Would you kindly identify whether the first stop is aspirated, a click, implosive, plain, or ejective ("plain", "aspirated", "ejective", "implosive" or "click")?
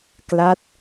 plain